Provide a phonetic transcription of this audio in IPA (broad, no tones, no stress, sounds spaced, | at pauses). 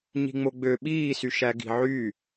ɲ i̤ ŋ͡m o ɡ͡b ø ɓ iː s y ʃ æ ɡ i̤ ʕ y